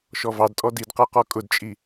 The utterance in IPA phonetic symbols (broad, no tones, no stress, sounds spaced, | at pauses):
ʃ ɔ v ɑ d tʼ ɔ d i d q ɛ q ɔ kʼ ʊ d t͡ʃʼ i